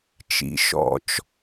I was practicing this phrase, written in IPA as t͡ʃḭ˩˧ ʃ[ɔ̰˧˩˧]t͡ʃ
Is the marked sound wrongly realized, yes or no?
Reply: no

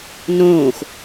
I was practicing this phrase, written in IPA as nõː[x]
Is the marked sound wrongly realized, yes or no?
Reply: no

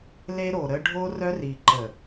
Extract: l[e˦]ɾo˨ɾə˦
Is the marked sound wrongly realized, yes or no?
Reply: no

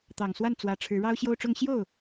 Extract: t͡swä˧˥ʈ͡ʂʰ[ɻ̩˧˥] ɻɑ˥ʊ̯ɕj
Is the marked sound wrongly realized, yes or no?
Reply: no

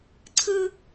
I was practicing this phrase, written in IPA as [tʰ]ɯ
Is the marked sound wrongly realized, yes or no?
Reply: yes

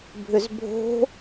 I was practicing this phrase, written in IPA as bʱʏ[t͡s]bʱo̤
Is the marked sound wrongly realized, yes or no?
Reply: yes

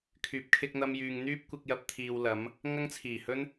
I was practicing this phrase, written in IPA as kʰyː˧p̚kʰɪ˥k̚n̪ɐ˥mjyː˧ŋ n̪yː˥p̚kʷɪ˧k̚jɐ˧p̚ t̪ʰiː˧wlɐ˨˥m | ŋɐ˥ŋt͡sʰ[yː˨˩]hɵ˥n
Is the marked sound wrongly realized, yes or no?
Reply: yes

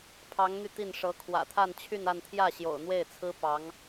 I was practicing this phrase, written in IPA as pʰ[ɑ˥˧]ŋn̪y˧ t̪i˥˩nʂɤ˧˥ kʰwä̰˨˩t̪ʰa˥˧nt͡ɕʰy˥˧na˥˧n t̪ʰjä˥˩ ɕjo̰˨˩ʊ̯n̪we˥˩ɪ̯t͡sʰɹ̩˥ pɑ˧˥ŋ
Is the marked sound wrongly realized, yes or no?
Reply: yes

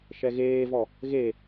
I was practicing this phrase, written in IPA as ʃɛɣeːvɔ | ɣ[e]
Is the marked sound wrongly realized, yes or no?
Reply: no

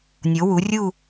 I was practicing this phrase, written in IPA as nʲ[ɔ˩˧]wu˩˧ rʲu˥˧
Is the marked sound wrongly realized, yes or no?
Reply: yes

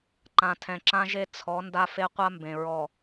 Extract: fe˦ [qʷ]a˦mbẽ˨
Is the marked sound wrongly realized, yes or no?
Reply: no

